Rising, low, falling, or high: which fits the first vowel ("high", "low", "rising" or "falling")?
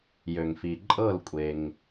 low